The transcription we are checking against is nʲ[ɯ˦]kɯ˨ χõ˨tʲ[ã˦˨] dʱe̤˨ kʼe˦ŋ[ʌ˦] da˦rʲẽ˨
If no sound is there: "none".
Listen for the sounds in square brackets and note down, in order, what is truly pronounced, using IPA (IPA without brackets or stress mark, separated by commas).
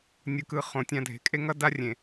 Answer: ɯ˨, ã˦˨, ʌ˦